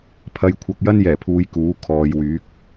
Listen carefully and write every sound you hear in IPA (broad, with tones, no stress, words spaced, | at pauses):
pʰɐ˨˧jkʷʰɐ˨k̚ jɐ˥njɛː˨˩pʰuː˨˧j kuː˨˥ kʰɔː˨˧jwyː˨˥k̚